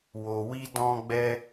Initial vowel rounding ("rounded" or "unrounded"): rounded